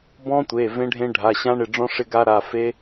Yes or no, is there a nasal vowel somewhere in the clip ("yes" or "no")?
yes